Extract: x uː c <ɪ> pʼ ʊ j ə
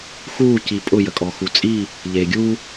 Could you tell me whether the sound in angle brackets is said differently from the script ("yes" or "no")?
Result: yes